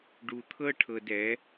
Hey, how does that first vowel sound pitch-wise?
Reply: low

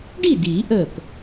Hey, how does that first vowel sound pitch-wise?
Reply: falling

